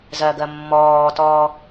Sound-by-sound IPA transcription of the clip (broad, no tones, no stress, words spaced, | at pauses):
zɜɡɜ mːɔːtɔ